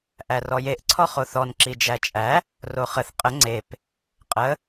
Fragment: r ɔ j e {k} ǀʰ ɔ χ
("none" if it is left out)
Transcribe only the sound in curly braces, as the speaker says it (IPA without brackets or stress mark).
ʔ